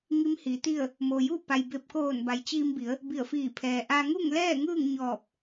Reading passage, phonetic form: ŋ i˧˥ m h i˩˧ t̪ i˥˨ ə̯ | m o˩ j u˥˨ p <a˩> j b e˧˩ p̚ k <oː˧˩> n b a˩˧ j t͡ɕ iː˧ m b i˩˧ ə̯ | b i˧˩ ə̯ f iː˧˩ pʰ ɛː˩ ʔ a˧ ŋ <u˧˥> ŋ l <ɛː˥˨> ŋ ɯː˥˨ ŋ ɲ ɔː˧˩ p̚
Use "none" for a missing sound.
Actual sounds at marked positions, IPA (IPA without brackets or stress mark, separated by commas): a˩, oː˧˩, u˥˨, ɛː˥˨